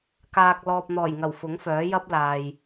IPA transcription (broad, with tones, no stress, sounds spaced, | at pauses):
k aː˨ k̚ l ɔː˨ p̚ n̪ ɔː˨˩ j ŋ ɐ˨˩ w f ʊ˨˥ ŋ f œː˨˥ j ɐ˥ p̚ l aː˨ j